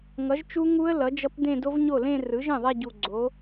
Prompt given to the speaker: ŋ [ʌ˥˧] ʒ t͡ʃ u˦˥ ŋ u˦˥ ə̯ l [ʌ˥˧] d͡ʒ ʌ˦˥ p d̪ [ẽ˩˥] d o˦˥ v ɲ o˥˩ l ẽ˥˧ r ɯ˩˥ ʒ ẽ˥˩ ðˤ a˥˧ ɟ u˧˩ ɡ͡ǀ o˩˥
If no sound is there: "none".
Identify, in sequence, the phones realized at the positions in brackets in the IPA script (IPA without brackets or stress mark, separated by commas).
ʌ˩˥, ʌ˩˥, ẽ˥˧